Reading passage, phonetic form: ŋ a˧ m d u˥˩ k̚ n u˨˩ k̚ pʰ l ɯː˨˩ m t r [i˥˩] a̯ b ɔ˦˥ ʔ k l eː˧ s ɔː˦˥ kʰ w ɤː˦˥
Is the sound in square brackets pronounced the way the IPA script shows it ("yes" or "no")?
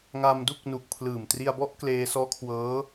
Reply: no